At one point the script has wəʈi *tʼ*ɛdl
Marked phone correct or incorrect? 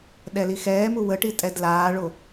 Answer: correct